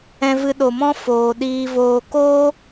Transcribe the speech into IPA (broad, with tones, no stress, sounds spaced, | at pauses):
ɛ̃˧ v ɨ˧ ɗ o˨ m ɔ̃˦ f oː˨ ɗ iː˧ v oː˧ k oː˦